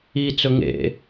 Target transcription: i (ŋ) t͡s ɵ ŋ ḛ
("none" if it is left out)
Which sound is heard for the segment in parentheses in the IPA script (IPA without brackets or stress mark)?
none